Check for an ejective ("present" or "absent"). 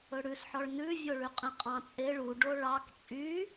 present